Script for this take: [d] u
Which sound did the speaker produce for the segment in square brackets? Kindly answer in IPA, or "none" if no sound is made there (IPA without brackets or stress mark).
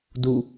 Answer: d